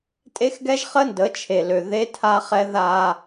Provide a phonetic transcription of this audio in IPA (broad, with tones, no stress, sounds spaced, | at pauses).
tʼ e˦ x ɡ ɛ˦ ʒ χ ə˦ n d ə˨˦ t͡ʃʰ e˨ l ø˨ ð e˦ tʰ a˦ χ ɛ˦ ð a˦